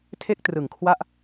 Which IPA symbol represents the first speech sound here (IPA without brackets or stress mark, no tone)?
tʰ